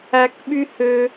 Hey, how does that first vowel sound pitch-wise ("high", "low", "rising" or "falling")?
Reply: high